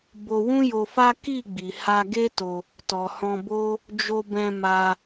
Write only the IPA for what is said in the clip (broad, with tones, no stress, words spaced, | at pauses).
bo˧wũ˦jo˧fa˦ ki˦˨ɡ͡bi˨ ha˧ɡe˦to˧ | tɔ˨hɔ̃˧bo˦ | d͡ʒo˧bɛ̃˧ma˧